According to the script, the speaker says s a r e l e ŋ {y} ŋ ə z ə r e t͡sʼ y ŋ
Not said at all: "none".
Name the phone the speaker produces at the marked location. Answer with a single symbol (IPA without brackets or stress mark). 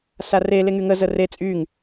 y